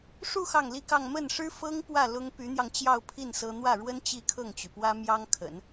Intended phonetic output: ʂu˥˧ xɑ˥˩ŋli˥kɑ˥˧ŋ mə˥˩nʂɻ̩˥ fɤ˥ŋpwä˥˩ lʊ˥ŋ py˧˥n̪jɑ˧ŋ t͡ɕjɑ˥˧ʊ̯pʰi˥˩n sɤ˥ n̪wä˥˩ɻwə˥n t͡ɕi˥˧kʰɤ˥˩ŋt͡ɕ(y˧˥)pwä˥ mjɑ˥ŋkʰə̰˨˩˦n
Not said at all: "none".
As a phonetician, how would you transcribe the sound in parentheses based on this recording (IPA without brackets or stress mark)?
y˩